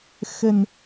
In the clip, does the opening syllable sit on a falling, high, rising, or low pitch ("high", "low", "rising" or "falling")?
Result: low